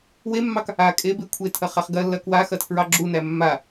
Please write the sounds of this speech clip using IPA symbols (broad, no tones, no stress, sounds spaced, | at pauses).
w e mː ɑ k | a kʼ e b e kʷʰ e tʰ ɐ χ a χ ɡ ɐ lː ɐ k w a x ɐ tʰ ɹ ɑ ɡ͡ǁ u n æ mː a